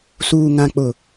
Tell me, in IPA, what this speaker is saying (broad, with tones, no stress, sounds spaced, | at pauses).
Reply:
s uː˨ ŋ ã˨ k͡p ʊ˨